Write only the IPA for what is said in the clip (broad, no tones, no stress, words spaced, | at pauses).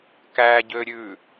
kæɟøɾʲʉ